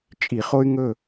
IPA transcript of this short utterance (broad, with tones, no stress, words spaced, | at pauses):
t͡ʃʼi˧˩˧χo˦y̯ ŋɵ˦˨